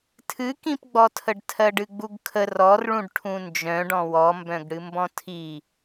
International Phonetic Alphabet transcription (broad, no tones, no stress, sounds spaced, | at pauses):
tʰ ɨ k ĩ p ɡ͡b ɔ tʰ ə ɖ tʰ ɜ ɖ ɨ ɡ͡b u ɡ kʰ ə r ɔ r ɭ ũ ɖ ʈʰ ũ n d͡ʒ œ̃ ɖ ɔ̃ w ɔ m b œ̃ ɡ ɽ ɨ m b ɔ̃ tʰ i